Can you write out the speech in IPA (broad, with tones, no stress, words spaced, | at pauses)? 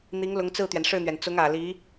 n̪i˧˥ŋlʊ˧˥ŋt͡sɹ̩˥˩t̪ɥɛ˩n ʂɻ̩˥˩n̪ɥɛ˩n t͡sʊ˧˥ŋ ä˨˩ li˧˥